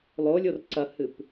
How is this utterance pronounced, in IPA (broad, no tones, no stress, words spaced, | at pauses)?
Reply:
lˠolʲor ǀɐhɨp